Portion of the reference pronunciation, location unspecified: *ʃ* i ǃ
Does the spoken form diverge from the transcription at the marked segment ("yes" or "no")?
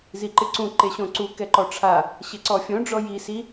yes